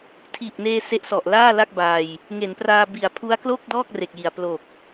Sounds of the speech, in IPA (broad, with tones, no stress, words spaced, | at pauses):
tʰiː˨˩p̚neː˧ se˦˥ʔsɔ˨˩ʔ laː˥˩la˥˩k̚baː˧j | ŋe˩˦npraː˧ bi˨˩a̯pʰu˦˥a̯klo˥˩k̚dɔː˥˩k̚ re˨˩k̚ji˨˩a̯ plo˨˩k̚